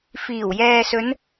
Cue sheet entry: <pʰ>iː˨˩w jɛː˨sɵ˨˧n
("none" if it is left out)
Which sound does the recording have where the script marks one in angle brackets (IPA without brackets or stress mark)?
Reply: f